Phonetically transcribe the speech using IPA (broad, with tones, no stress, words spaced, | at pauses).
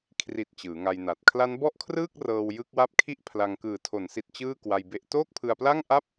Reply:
kʰri˨˩t̚ t͡ɕɯː˩˦ŋa˧jna˨˩t̚ kʰla˦˥nbɔ˥˩ʔkʰrɯː˥˩k̚ rɤː˧wjɯ˦˥k̚wa˥˩p̚ kʰi˦˥ʔ pʰla˧ŋ kɯː˩˦tʰo˩˦nsi˨˩t̚ t͡ɕɯː˥˩kwa˧jbe˦˥ʔ toː˥˩k̚pʰɯ˧a̯pla˥˩ŋ ʔa˥˩p̚